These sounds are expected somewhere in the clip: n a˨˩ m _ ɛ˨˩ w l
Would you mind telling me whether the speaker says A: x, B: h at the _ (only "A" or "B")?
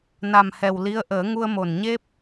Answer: B